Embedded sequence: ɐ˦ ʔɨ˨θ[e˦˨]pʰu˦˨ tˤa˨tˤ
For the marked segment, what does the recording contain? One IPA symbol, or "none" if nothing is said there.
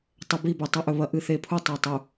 e˨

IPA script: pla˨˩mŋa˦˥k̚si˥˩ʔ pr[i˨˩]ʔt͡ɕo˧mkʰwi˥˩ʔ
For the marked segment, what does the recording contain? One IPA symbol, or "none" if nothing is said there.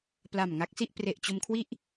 e˨˩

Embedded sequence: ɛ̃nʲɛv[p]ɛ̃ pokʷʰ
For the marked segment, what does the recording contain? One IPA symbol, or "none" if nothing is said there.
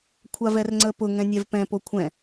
p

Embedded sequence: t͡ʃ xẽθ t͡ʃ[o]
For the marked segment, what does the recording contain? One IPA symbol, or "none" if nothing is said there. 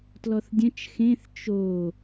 o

